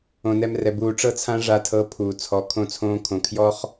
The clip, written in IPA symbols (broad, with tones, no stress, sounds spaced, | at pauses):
õ˨ n ɛ˧ m r ɛ˨ b uː˨ ʈ͡ʂ ɤ˧ t͡sʰ ã˧ ʐ a˧ tʰ ɤː˧ pʰ uː˨ t͡sʰ ɔ˨˦ kʰ õ˧ t͡sʰ õː˧ kʰ õ˨ kʰ j ɔ˦ χ